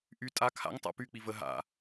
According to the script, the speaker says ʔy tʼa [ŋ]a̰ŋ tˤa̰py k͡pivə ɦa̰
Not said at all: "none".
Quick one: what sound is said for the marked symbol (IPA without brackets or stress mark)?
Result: kʰ